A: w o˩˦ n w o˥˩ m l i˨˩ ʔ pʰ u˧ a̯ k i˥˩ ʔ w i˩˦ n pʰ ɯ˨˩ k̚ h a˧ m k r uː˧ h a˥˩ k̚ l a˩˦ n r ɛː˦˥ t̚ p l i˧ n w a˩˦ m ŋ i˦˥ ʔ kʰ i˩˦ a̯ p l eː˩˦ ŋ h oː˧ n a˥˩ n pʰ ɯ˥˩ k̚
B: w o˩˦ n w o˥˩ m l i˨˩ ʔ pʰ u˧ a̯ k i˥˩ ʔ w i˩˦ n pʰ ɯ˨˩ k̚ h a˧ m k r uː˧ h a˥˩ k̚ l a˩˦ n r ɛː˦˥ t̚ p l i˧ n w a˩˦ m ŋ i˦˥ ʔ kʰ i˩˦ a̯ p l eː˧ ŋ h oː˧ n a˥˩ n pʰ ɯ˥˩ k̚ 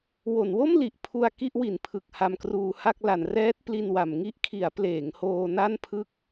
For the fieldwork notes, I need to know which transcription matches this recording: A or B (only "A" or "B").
A